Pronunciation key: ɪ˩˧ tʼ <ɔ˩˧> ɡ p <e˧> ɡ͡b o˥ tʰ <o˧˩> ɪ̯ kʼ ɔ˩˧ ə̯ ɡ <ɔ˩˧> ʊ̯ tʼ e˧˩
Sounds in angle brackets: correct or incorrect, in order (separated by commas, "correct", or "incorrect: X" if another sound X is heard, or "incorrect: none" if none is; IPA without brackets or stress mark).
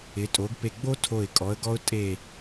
incorrect: o˩˧, incorrect: e˧˩, correct, incorrect: ɔ˧